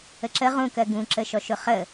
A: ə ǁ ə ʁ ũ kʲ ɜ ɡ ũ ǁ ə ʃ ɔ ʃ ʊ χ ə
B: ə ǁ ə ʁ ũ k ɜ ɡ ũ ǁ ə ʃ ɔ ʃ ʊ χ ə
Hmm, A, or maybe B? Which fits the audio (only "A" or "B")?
B